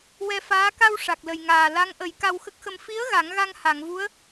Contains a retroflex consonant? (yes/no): yes